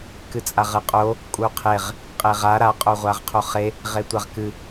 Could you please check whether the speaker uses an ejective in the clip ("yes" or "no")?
yes